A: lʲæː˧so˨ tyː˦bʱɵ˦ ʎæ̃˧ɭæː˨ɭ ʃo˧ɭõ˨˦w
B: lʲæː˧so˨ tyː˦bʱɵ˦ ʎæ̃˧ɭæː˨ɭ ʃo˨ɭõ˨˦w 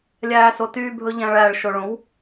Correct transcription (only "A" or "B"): B